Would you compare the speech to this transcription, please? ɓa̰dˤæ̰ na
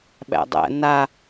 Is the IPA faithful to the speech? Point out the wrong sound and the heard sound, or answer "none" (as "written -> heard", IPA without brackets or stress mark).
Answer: a̰ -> æ̰